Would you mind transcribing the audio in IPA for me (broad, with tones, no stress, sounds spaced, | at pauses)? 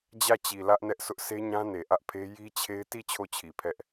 d͡ʑ ä˦˨ t͡ɕ i˨ l ä˦ ʔ n ɛ˦ ʔ sʰ ʊ˦ ʔ sʰ e˦ ɲ ã˦ n e˨ ʔ ä˦ ʔ pʰ e˦ j i˦ t͡ɕʰ e˦ ɪ̯ t i˦˨ t͡ɕʰ o˦˨ t͡ɕʰ i˨ pʰ ɛ˦ ʔ